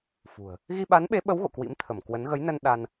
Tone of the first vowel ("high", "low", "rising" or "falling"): low